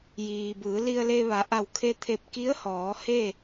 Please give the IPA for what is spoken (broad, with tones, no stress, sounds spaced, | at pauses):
j iː˩ b ɯː˩˧ l i˧ ə̯ l e˧ ʋ a˩˧ ʔ a˧˩ w kʰ e˧ t̪ʰ e˧˩ p̚ k i˧˥ ə̯ h ɔː˩˧ h e˥˨